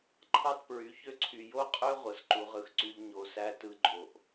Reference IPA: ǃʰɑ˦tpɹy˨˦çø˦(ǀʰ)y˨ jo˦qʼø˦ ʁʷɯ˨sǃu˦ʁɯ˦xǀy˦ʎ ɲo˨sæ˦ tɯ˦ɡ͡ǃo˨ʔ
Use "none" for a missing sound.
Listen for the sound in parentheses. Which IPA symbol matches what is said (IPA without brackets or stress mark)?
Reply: ǀʰ